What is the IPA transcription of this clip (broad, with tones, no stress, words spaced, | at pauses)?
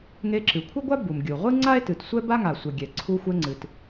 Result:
ŋe˧ǁɨ˩kʷʰɨ˥ɡʷa˥ bu˩mɡʲu˩ ʁʷɨ˥ŋ͡ǀa˥e̯tɨ˩t sʷɛ˥ba˥ŋa˩ sʷe˩ɡʲɛ˩ ǀʰu˧xʷɛ˧ŋ͡ǀɨ˩t